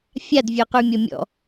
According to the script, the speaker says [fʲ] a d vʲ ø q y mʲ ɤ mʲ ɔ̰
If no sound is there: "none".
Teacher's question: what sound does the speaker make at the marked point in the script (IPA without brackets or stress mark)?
fʲ